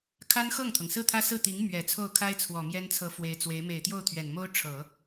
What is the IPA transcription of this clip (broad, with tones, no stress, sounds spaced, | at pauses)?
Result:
kʰ a˥ n x ɤ˥˩ ŋ t̪ʰ ɤ˩ ŋ s ɹ̩˥˩ t̪ʰ ä˥ s ɹ̩˥˩ t̪ i˧˥ ŋ m ɥ ɛ˨˩ t͡sʰ o˥˩ ʊ̯ kʰ a˥ ɪ̯ t͡sʰ w ɔ˨˩ m j ɛ˥ n t͡sʰ ɤ˧˥ f w e˧˥ ɪ̯ t͡s w e˧˥ ɪ̯ m e˨˩ ɪ̯ t̪ j o˥˩ ʊ̯ t̪ʰ ɥ ɛ˨˩ n m o˥ ʊ̯ ʈ͡ʂʰ ɤ˨˩˦